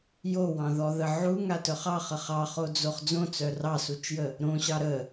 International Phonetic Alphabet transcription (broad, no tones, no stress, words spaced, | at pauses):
jowɑ̃ðɔðə ʕuŋatœχ ɑχə χɑχod͡zoχ d͡zõt͡sœ rɑsut͡ʃjə | ɾõɕɑ ɾə